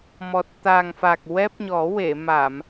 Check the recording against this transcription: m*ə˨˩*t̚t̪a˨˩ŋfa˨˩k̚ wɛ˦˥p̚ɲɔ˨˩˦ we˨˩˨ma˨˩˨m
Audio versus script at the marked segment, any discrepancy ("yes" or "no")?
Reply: yes